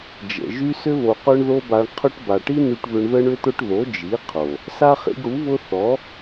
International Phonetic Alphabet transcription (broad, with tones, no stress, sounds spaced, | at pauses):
d͡ʒ ə̰˨ ʒ y˧ s ʏ˧ β o˨ q œ˦ ɳ ð o˦ b a˧ ɳ qʰ ʊ˧ ʈ b a˨ ʈ i˦ n y˧ ʈ β ʏ˧ ɳ ð ə˦ ɳ ʏ˦ t̪ ʊ˦ ʈ ð o˨˦ d͡ʒ i˨˦ qʰ o˨ | s a˦ χ ḭ˧ ɡ ɽ u˨˦ β ʊ˦ θ ɔ˨˦